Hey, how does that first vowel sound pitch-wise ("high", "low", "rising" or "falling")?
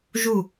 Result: falling